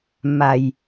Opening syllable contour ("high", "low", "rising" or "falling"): low